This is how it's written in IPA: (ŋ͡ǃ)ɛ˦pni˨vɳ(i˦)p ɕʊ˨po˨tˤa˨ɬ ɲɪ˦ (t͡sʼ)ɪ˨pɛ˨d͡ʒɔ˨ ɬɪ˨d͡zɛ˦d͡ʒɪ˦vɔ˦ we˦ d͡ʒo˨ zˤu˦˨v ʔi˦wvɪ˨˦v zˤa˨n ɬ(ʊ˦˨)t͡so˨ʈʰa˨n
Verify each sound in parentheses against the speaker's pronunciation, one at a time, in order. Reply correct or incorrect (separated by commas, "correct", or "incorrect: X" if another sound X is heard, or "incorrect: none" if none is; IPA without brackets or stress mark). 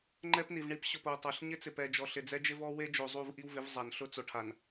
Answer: correct, correct, incorrect: t͡s, incorrect: ʊ˦